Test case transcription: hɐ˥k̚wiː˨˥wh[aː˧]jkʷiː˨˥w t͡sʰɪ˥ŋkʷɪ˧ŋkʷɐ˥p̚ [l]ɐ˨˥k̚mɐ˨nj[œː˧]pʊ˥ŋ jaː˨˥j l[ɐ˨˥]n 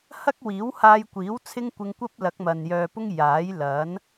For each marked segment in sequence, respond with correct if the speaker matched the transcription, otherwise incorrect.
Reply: correct, correct, correct, correct

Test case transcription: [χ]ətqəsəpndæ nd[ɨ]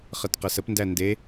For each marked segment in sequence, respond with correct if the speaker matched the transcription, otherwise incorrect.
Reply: correct, incorrect: e

